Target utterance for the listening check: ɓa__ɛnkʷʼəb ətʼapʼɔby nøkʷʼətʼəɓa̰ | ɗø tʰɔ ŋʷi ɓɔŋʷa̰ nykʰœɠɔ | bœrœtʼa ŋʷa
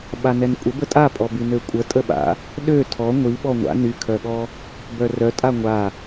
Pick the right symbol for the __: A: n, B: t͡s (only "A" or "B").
A